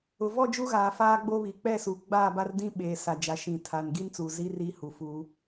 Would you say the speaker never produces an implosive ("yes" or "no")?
no